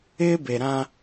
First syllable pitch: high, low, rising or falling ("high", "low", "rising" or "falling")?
high